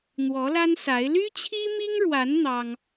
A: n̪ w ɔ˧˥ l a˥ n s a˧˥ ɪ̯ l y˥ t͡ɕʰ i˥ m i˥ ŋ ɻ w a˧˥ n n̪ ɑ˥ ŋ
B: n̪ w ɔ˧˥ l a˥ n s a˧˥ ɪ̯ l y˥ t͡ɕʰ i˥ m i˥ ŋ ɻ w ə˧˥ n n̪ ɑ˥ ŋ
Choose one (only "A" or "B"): A